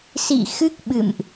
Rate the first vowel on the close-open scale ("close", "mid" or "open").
close